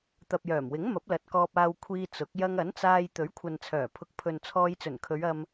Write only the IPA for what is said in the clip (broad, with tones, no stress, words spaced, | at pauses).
t̪ɐ˨p̚jœː˨˩mwɪ˨˥ŋ mɐ˨˥p̚lɐ˨t̚ kɔː˧p̚aː˧w kʷʰiː˧ t͡sʊ˨˥k̚ jɐ˧ŋɐ˨˥nt͡saː˧j t̪ɵ˨˥ɥkʷʰɐ˨nt͡sʰœː˨˩ pʰʊ˨k̚pʰɵ˨n t͡sʰɔː˧jt͡sɵ˨˩nkʰɵ˨˧ɥ ɐ˧m